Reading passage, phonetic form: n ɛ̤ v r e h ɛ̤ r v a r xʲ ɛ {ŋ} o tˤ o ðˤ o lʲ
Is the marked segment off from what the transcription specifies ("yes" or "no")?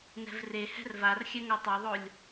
no